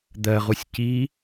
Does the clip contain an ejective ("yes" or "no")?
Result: no